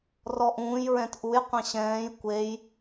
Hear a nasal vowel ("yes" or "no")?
yes